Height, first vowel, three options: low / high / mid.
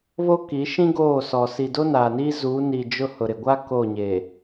mid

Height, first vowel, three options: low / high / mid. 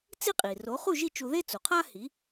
high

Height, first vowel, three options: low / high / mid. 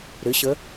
high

